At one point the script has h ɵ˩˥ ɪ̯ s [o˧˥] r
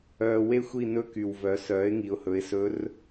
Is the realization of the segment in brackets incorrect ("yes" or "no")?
yes